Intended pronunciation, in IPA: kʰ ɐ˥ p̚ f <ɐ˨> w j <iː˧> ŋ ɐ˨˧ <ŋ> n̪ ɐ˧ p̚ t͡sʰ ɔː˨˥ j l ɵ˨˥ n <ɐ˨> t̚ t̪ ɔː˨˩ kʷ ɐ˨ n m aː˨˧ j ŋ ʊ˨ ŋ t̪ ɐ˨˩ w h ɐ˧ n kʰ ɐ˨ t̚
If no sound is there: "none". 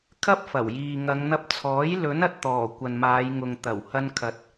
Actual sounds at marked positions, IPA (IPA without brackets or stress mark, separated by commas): ɐ˨˩, iː˨, ŋ, ɐ˨